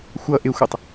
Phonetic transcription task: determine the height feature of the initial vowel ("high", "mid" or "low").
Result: mid